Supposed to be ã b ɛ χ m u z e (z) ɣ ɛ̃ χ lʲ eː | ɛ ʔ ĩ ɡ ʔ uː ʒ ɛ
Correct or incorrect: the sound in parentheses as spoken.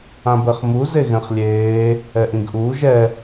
incorrect: none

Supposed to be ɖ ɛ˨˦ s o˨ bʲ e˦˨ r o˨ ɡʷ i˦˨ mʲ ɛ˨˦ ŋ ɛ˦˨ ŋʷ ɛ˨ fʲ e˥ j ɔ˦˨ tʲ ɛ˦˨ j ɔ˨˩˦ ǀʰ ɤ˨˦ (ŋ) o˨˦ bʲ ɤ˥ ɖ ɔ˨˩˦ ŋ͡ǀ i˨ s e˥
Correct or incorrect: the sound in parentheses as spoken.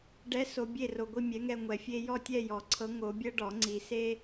correct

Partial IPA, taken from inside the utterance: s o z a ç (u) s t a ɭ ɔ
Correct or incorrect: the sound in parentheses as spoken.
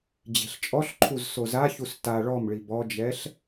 correct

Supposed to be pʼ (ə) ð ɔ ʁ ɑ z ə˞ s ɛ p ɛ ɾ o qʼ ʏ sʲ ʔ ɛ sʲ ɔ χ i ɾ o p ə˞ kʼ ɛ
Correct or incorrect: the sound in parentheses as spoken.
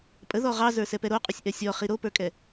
correct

